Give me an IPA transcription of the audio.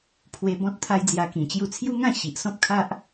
pʰ w e˧ b ɔ̃˦ t̚ t̪ʰ a˦ j d͡z j a˧ k ĩ˨˩ t͡ɕ j u˧ t͡sʰ j u˦ ŋ ã˥˧ ɕ i˨ ʔ s ɔ̃˦ p̚ kʰ a˦ ʔ

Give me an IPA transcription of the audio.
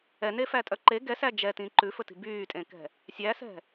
ɛ n e f æ tʼ œ ǃ e ɡ ɛ s æ d͡ʒ ɛ t ĩ ǃ ʉ f ɵ t i̤ b yː tʼ ẽ k ɛ̤ | sʲ æ s ɛ̤

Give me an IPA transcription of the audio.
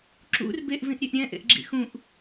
ǁ ṵ r b e ʔ v ĩ ʔ ɾʲ e ʔ ɾʲ ɛ̃ ʔ ḛ ʔ ɡ͡ǁ ḭ x ũ ʔ

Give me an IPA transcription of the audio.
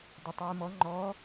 d ɛ tˤ ɨː m ɔ ŋ͡ǃ ɔ

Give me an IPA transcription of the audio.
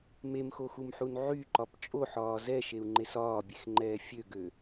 m e m x o x u m ħ u n ʕ y ǃ ɒ p t͡ʃʼ o ħ ɒː z ɛ ʃ e u̯ ŋ͡ǃ e s ɒː bʲ e x ŋ͡ǃ ɛː fʲ ø ɡ ø

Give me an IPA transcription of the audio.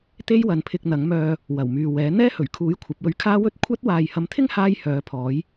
t̪ e˥ j w ɐ˨ n pʰ ɪ˧ k̚ n̪ ɐ˨˥ ŋ m œː˧ | w ɐ˨˩ w m yː˨ w ɛː˨˥ n̪ ɛː˥ h ɵ˨˩ ɥ kʰ uː˨˥ j kʷʰ ɐ˨˥ p̚ w ɵ˧ ɥ kʰ aː˥ w ɵ˥ t̚ kʷʰ ɐ˥ t̚ w aː˨ j h ɐ˨˧ m t̪ʰ ɪ˥ ŋ h aː˧ j h œː˨˧ pʰ ɔː˨˥ j

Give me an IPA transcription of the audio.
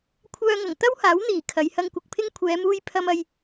kʷʰ œː˧ ŋ ɐ˨˩ ŋ t̪ ɐ˥ w h aː˨˥ w n̪ iː˨˩ kʰ ɐ˨˧ j h ɐ˧ ŋ kʷ ɪ˨ k̚ pʰ ɪ˥ ŋ kʷʰ ɛː˨˧ m uː˧ j pʰ ɐ˧ m ɐ˧ j

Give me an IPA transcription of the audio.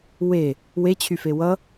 w e | w e t͡ɕʰ y f e w ʌ

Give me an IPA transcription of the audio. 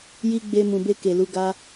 j i˧ ɡ͡b e˧ m ũ˨ b e˧ k e˨ l u˨˦ ɡ a˦

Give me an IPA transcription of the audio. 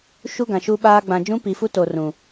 ʃ u˦ ɡ ã˨ ʃ u˦ ɓ aː˦ ɡ͡b ã˨ d͡ʒ ũ˦ p i˨ f u˦ t o˨ r ũ˨

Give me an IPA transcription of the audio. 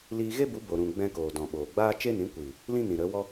l iː˧ ɣ e˦ b u˨˦ b o˨ ɾ ũ˨ ɡ͡b ɛ̃˧ k oː˨ d ɔ̃˨ ɓ oː˨ ɡ͡b aː˦ t͡ʃ e˦ n ĩ˨˦ kʷ iː˨ | l ĩ˦ n ĩ˨ ɾ ə˨˦ w ɔ˦

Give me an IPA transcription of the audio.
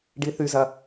ɖ i θ y z ɐ

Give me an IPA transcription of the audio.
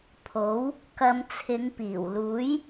pʰ o˨˥ w | k ɐ˧ m t͡sʰ ɪ˨˧ ŋ p iː˨˩ w l uː˨˥ j

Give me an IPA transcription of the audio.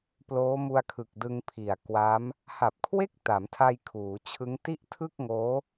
p l oː˦˥ m u˧ a̯ kʰ ɯ˨˩ k̚ d ɯ˧ ŋ pʰ i˨˩ a̯ k w a˦˥ m | h a˨˩ p̚ kʰ w e˥˩ k̚ t a˩˦ m tʰ a˧ j kʰ uː˩˦ t͡ɕʰ ɯ˦˥ ŋ t i˥˩ ʔ tʰ ɯ˥˩ k̚ ŋ oː˦˥

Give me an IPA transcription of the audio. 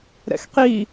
ɾ ɛ̰ x q i

